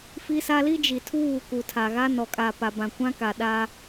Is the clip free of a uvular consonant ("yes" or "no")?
yes